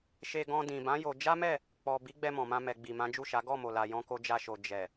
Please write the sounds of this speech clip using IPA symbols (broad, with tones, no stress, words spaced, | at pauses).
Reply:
ʃe˧ɡɔ̃˧ dĩ˨bã˨˦ jo˧ d͡ʒa˦mɛ˦˨ | k͡pɔ˨ bi˨˦ɡ͡bɛ˧ mɔ̃˨mã˧ mɛ˨ɡ͡bi˨ mã˨˦d͡ʒu˦˨ʃa˨˦ ɡɔ˦˨mo˨la˨ jɔ̃˧ko˧d͡ʒa˧ʃo˨ d͡ʒɛ˨